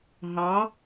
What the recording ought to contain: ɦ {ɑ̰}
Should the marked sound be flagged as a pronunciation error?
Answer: yes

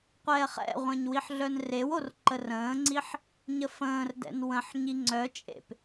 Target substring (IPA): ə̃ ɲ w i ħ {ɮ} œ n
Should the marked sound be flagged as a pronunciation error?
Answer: no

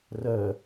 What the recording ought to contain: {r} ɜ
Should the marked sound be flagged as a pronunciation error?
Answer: no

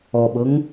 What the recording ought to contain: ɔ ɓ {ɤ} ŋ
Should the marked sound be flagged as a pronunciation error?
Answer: no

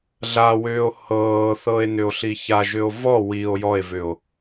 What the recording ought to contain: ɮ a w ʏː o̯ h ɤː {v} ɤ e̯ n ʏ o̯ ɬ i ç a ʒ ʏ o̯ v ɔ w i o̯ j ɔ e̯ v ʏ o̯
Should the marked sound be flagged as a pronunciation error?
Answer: yes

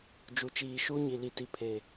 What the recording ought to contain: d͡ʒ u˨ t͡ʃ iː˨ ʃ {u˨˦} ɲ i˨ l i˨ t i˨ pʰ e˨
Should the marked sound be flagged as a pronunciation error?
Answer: yes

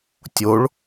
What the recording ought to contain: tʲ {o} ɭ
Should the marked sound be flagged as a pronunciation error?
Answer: no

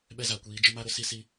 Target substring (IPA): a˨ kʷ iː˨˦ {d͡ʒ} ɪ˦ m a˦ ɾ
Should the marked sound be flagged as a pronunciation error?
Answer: no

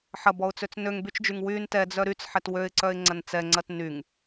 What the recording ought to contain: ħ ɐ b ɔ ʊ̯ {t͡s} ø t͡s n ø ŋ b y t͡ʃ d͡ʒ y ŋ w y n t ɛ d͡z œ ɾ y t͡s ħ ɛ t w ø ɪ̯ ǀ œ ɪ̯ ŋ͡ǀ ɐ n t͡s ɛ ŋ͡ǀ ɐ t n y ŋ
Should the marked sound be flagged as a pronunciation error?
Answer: no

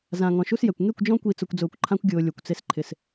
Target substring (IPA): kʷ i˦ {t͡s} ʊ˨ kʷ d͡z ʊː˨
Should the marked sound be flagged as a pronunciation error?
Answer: no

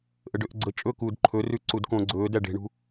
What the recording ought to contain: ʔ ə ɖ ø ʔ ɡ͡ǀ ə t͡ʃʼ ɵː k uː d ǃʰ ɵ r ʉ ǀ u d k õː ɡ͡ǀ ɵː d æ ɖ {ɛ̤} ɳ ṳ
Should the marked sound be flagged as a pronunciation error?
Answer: yes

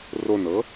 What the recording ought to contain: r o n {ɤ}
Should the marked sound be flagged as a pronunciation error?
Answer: no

